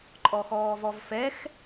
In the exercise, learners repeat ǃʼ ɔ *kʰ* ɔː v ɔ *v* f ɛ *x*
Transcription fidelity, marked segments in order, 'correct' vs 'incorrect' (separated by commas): incorrect, correct, correct